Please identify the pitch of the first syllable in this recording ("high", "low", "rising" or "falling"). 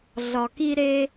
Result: low